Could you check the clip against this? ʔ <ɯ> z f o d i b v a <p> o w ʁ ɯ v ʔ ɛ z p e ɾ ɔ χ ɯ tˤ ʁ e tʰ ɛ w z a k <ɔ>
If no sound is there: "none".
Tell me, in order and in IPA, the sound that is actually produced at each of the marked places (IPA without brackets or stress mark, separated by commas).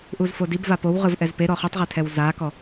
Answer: u, p, ɔ